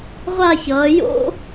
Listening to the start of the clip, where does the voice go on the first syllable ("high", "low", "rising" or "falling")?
falling